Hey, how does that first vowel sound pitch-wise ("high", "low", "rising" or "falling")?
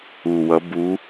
low